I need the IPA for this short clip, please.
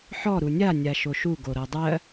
ħ ɔ ɾ u nʲ a nʲ a ʃ o ʃ u ɡ o ɾ ɤ dˤ ɜ

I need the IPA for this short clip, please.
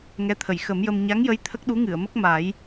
ŋ ɛ˧˥ t̪ʰ ə˨˩˨ j x ə˨˩˦ m j ə˧ m ɲ a˧˥ ŋ j ə˧˥ j t̪ʰ ə˦˥ k̚ ɗ u˧˥ ŋ ɨ˨˩˨ ə̯ m ə˦˥ k̚ m a˨˩˦ j

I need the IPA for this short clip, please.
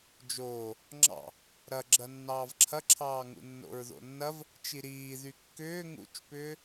d͡ʒ oː | ŋ͡ǁ ɑ̰ | ɾ ɐ ɡ͡ǁ ɐ nː ɑː v ǁʰ ɐ ǁʰ ɑː ŋ ṵ nː o̰ ɹ ð o̰ nː ɐ v | t͡ʃ i ɾ iː ð y kː ʏː ŋ ṵ t͡ʃ p ʏː

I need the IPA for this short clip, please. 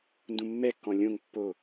n d ũ mː ɛ kː ɔ̃ lʲ õ ŋ pː o

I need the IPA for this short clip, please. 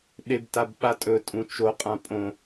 ɗ e b t a b ɓ a tʼ ɵ tʼ ũ t͡ʃ o qʼ ã pʼ õ

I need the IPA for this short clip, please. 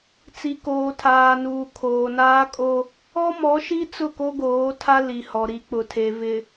t͡s i˨ k oː˨ tʰ aː˨ n uː˨ kʰ oː˨ n aː˦ kʼ o˦ | ɔ˦ m ɔ˨˦ ʃ i˦ t͡s ʊ˦˨ k o˦ ɡ oː˨˦ tʰ a˦ l i˨ h ɔ˨ ɾ i˨˦ k͡p ʊ˨ tʰ e˨ v ɪ˨

